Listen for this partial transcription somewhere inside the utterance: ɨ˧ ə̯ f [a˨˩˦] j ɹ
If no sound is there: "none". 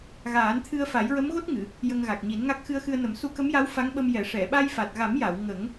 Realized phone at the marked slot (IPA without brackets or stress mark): a˨˩˦